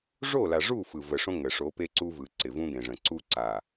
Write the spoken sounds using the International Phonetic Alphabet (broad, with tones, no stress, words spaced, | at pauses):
ʐo˦˨la˨ʐu˦˨ fɯ˨və˨ʂõ˦ ŋə˨ʂo˨˦ pe˦ǀu˦vɯ˨ǀɪ˨ vũ˦ɡẽ˨ʐə̃˨ ǀu˦ǀa˨